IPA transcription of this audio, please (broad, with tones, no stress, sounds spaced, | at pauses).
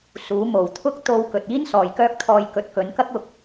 s uː˨˥ m o˨˩ w t̪ʰ ʊ˥ k̚ t̪ o˧ w k ɵ˨ t̚ iː˥ n s ɔː˨ j k œː˥ k̚ t̪ʰ ɔː˧ j k ɵ˨˥ t̚ k ɵ˨˥ n k ɐ˥ k̚ ʊ˥ k̚